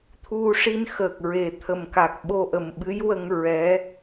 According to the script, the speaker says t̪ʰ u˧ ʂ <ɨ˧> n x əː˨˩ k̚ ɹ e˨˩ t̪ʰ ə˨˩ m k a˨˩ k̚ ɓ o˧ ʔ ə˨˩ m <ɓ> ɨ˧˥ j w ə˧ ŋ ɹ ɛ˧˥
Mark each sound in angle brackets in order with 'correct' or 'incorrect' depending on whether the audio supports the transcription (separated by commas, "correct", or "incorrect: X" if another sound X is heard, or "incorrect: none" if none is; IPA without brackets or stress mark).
incorrect: i˧, correct